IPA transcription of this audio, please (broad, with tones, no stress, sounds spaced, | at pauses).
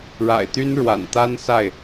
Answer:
ɻ a̰˨˩ ɪ̯ t̪ y˥ n ɻ w a̰˨˩ n t̪ a˥ n s a˥˩ ɪ̯